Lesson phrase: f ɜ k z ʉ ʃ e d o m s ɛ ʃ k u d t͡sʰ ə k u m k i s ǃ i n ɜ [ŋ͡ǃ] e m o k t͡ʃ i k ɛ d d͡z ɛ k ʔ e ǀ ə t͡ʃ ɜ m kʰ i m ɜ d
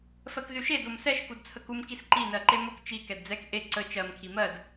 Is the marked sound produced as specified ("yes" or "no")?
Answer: no